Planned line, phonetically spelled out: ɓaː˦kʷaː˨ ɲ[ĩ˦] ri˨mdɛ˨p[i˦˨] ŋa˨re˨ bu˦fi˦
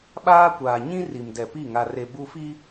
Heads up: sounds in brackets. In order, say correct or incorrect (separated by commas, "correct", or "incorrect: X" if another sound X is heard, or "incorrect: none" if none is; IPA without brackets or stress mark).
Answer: correct, correct